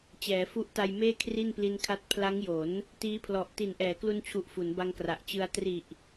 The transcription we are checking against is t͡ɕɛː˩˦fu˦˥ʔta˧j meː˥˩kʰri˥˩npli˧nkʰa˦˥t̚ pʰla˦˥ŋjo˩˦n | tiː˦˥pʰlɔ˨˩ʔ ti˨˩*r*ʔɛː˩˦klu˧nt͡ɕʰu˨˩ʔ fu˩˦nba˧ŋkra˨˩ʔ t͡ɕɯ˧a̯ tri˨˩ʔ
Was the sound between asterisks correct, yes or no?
no